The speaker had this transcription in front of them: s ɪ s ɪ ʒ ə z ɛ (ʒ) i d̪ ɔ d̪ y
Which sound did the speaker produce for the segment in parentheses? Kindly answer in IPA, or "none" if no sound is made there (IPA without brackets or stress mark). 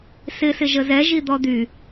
ʒ